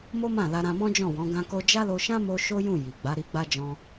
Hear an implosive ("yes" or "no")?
no